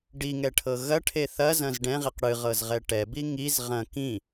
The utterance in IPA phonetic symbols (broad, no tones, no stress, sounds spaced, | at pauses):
ɖ i ŋ ɛ ʈʰ ɤ ɣ ɐ ʈʰ e θ ɐ z ɐ̃ z ɖ ɛ̃ ʁ i q ɽ ɨ ʁ ɤ z ʁ ɛ ʈ ɛ b i ŋ i z ʁ ɐ̃ k ĩ